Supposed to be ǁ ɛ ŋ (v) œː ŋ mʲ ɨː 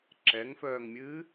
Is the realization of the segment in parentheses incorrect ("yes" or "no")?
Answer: yes